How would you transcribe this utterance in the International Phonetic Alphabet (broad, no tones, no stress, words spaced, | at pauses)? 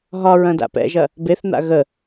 ɦɒ ɹɐ̃da̰pɛ̰ʒɐ | beθn̪a̰ ɣə